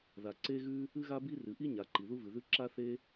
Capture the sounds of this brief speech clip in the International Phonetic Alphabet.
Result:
ð a˩ ǀ e˥ ɣ ʉ˥ | ɨ˥ ɣ a˥ b i˥ r ɨ˩ ʔ i˥ ɲ a˩ ǃ i˩ ð u˥ v ɨ˩ ð ʉ˥ ǁ a˥ θ e˥

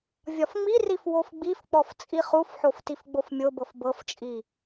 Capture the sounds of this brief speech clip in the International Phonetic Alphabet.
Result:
vʲ ɒ f ŋ͡m i r i f w o f ɡ͡b i f k͡p ɔ f t͡sʼ i χ u f ħ o f t i f ɡ͡b o f mʲ o b ɤ f b ɤ f t͡ʃʼ i

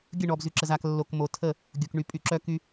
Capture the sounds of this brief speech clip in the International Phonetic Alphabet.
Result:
ɡʲ ə˦˨ ɳ ɔ˨ b z y˨ ǁ ə˨ z a˨ k lː o˨ k m o˨ tʰ ə˦˨ | ɡʲ o˨ k ɳ y˨ pʼ y˨ ǁ œ˦ k y˦

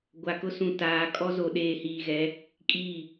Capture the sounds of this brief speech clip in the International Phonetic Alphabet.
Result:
ɡʷ a˨ k ʊ˦ s ũ˨ t aː˨ kʼ ɔ˦ z o˨ ɗ eː˨ h iː˨ ɣ ɛ˨˦ | kʼ iː˦˨

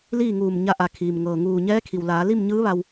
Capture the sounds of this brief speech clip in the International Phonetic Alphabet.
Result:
l iː˥˨ ŋ uː˧˩ m ɲ a˧ ʔ a˩˧ kʰ iː˩ m ŋ ɤː˩ ŋ uː˧˩ ɲ ɛː˧˥ kʰ i˩ w l aː˩˧ l i˥˨ m ɲ ɯː˧˥ ʋ a˧ w

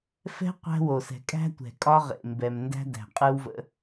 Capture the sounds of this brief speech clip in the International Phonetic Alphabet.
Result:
f ɛ̤˦ qʷ æ̤˦ w o˨ s ɛ̤˨ kʼ æ̤˦ tʷ ɛ̤˨ kʼ ɒ˦ ʁ ḛ˨ m b ɛ˨ m n d æ̤˦ d æ̤˨ qʼ ɯ˦ w v ə̰˦

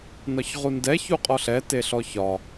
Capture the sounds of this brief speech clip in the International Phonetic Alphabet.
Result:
n ɒ ç ʁ u n d ɛ ç u qʼ ɔ ɬ ɛ t e ɬ ɔ ç ɒ

